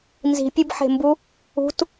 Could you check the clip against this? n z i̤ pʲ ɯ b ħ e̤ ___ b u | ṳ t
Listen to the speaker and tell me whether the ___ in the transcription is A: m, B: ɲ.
A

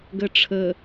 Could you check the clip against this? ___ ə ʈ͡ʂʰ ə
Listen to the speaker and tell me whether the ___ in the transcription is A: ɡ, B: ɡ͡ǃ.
A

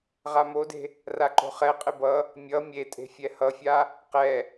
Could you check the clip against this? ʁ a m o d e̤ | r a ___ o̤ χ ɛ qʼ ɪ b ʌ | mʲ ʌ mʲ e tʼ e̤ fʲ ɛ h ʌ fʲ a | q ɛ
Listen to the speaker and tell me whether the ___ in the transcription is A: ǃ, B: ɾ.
A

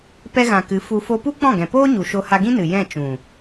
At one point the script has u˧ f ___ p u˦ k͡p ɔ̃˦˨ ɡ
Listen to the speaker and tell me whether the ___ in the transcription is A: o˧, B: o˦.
A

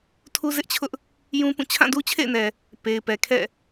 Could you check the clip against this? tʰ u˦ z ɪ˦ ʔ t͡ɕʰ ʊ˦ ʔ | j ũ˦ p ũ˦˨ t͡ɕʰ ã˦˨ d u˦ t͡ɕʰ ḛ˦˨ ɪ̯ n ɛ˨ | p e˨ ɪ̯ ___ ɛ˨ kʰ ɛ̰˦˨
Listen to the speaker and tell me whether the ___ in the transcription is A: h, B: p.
B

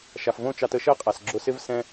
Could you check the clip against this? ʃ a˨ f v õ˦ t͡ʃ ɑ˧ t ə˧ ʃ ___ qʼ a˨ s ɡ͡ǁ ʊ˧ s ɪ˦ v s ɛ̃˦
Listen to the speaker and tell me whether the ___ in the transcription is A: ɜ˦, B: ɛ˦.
A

